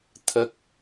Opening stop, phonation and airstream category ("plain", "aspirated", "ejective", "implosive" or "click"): aspirated